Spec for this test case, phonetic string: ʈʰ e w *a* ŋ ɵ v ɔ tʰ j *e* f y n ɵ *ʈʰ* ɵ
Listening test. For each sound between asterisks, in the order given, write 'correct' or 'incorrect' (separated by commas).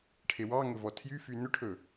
incorrect, incorrect, correct